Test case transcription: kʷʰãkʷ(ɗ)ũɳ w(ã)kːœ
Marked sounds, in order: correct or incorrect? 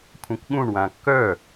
incorrect, correct

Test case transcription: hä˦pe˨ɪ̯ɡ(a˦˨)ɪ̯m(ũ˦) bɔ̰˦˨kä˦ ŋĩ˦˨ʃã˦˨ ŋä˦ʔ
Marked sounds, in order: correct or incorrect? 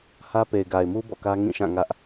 incorrect, incorrect

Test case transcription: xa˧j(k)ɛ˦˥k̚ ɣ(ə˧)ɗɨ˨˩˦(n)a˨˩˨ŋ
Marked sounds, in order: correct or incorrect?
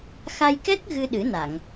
correct, incorrect, correct

